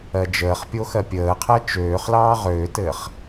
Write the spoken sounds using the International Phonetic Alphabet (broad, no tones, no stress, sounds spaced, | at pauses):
ɜ d͡ʒ əː χ pʲ o x ɜ pʲ əː qʰ ɜ t͡ʃ øː χ l ɑː ʁ øː t ɘː χ